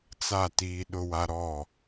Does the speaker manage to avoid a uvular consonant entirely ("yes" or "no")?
yes